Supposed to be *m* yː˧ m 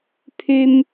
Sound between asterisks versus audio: incorrect: pʰ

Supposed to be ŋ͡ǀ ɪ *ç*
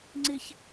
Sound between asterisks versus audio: correct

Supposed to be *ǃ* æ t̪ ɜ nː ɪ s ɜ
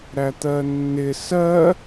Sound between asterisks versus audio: incorrect: ɾ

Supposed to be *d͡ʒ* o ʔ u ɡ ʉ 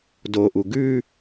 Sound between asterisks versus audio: incorrect: d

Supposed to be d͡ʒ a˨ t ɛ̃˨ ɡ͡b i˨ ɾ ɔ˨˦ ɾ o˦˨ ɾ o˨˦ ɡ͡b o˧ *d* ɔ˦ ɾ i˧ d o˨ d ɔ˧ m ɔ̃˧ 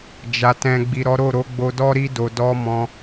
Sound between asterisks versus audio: correct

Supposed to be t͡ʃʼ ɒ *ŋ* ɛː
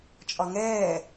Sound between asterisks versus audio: correct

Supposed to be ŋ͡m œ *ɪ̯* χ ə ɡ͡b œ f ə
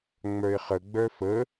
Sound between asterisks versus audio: correct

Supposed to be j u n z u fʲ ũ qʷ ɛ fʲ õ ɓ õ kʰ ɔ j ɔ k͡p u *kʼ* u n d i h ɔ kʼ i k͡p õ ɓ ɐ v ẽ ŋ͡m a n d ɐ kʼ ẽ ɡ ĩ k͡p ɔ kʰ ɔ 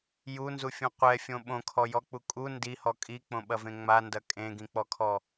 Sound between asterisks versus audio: correct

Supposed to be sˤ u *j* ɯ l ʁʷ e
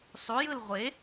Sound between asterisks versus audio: correct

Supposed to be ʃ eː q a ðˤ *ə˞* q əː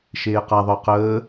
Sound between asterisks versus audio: correct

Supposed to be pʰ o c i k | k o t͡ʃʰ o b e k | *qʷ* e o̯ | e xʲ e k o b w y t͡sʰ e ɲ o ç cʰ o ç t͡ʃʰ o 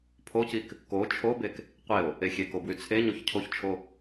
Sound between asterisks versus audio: correct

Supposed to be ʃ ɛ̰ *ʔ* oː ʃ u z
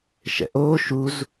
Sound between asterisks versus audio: correct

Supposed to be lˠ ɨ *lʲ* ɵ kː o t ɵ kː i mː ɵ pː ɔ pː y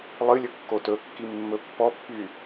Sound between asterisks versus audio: correct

